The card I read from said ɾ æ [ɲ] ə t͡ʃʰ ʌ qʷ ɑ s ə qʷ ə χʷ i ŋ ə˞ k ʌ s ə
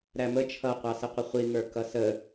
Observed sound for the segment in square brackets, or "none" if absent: m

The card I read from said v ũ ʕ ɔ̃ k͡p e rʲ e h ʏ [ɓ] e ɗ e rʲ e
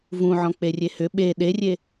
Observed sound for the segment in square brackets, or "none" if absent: ɓ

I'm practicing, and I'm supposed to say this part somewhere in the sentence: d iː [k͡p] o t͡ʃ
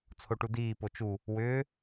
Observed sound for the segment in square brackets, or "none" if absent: p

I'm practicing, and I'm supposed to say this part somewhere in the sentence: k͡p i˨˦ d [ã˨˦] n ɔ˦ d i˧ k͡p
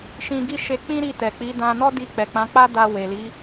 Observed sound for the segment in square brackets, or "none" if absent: ã˧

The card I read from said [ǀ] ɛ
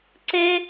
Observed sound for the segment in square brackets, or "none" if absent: ǀ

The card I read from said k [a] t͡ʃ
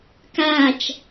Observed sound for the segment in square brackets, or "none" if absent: a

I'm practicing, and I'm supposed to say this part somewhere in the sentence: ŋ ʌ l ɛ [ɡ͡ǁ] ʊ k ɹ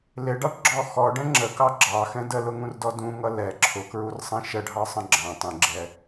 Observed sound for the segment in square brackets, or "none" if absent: ǁʰ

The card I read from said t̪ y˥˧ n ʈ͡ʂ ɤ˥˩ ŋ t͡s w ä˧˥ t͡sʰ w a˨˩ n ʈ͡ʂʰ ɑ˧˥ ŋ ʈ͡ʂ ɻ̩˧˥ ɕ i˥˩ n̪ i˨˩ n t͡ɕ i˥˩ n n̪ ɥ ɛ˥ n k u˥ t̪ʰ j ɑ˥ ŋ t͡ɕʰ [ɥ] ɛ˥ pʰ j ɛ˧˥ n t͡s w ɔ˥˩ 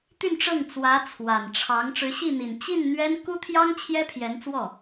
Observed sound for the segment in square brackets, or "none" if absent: j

